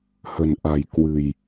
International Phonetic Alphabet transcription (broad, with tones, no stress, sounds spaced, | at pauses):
h ə̤˨˩ n ʔ a̤˨˩ j k w ɨ̤˨˩ j